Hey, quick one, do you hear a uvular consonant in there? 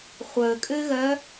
yes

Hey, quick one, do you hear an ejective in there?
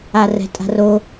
yes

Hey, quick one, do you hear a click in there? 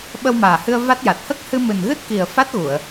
no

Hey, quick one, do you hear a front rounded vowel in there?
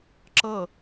no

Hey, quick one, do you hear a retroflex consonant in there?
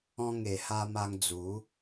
no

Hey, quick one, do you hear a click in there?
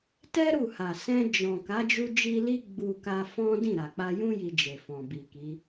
no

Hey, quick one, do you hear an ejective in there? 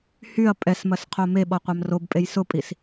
yes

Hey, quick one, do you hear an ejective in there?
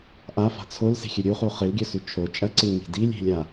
yes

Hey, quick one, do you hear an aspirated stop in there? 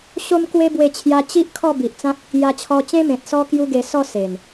yes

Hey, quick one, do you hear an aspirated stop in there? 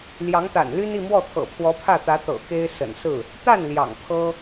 yes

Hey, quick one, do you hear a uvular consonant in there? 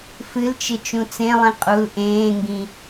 yes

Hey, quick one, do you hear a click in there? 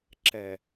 yes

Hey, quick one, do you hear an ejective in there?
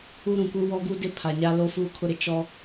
no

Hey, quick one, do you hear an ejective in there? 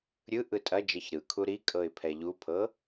yes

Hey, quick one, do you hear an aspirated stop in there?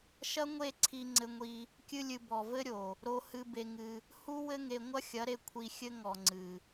yes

